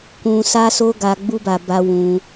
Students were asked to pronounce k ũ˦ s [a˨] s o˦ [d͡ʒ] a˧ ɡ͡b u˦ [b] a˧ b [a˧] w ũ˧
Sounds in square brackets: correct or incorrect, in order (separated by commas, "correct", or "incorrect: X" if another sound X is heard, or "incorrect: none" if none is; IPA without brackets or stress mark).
incorrect: a˦, incorrect: ɡ, correct, correct